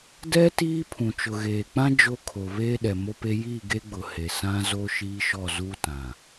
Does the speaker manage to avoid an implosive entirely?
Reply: no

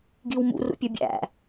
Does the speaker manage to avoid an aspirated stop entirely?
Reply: yes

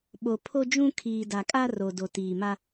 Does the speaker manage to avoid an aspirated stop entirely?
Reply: no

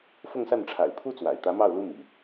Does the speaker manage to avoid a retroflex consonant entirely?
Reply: no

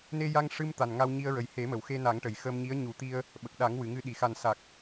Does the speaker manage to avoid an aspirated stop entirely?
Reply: yes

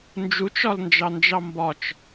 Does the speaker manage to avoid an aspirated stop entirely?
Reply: yes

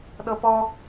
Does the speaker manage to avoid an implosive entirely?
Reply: no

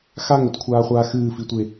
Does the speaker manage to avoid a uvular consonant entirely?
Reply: no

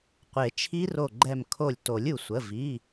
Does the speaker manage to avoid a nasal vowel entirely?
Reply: yes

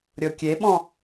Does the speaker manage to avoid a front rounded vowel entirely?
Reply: yes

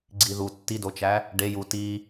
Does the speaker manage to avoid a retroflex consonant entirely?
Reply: no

